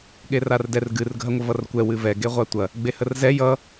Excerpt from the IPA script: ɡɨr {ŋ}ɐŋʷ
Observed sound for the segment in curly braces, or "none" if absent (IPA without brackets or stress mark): ɡʱ